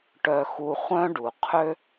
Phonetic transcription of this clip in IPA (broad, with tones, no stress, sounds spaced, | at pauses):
ʈ œ˧ x u˧ χʷ œ̃˦ ɖ u˨ qʰ ø˦